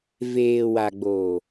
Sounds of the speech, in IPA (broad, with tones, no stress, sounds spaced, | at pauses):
v eː˨ w a˨ ɡ͡b oː˨